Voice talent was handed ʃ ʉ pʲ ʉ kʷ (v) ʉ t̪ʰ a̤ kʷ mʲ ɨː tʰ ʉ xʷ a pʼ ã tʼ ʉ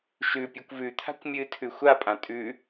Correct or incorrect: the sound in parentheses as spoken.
correct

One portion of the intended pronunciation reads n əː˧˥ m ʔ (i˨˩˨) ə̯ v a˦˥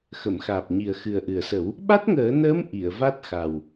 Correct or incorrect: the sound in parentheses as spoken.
correct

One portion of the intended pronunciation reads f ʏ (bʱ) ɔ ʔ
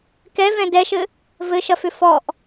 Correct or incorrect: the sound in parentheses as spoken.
incorrect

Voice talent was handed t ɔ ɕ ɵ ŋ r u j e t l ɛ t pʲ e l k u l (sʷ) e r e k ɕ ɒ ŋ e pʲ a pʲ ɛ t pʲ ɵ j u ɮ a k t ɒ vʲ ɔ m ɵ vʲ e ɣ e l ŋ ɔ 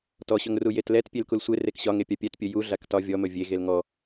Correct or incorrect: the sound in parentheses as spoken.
correct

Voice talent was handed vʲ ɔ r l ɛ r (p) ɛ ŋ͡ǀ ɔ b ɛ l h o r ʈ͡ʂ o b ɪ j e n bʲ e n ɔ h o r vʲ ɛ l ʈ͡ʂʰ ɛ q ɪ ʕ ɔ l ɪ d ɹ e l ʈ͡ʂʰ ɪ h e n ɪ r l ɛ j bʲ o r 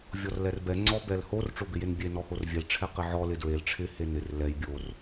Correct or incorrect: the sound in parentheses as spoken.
incorrect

